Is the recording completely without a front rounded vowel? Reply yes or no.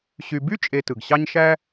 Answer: no